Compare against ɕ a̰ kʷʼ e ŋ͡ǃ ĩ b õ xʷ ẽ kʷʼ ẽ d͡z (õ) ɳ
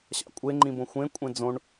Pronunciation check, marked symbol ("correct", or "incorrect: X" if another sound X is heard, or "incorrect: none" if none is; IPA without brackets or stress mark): correct